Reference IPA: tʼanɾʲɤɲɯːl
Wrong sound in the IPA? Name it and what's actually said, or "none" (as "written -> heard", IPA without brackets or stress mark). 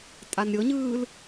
none